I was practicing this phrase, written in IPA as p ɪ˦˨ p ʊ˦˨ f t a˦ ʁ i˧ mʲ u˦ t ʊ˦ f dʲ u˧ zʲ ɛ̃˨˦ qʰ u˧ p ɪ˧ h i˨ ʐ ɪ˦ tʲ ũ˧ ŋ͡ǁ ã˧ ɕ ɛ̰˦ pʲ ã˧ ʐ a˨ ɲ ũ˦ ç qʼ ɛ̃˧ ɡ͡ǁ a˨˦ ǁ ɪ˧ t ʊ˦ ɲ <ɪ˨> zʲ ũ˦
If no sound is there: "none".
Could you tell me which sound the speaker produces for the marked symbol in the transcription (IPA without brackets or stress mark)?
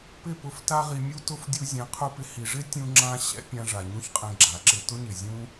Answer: ɪ˨